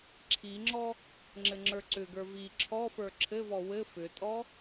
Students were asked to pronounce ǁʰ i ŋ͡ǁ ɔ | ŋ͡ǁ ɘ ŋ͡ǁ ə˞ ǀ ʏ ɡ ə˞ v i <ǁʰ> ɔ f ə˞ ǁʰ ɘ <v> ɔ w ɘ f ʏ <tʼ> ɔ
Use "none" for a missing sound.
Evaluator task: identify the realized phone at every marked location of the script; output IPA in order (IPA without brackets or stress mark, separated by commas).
ǁʰ, v, tʼ